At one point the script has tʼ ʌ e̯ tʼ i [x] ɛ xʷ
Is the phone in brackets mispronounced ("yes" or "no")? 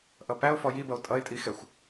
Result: no